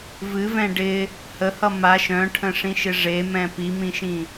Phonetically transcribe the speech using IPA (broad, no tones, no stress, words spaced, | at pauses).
vɨvɛ̃ ɖɪ | həhʌ maʃ œ̃ʈʰə̃ʂĩʃɪ ʐemɛ̃ pimĩʃĩ